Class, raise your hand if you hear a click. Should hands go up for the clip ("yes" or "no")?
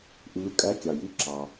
yes